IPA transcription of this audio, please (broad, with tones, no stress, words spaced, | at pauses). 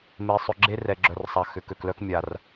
me˨sˤʏ˨ ɡ͡ǁe˦rɛ˨ɡ͡ǁœ˨r sˤa˨ xʏ˨kø˨klœ˦k mʲa˨r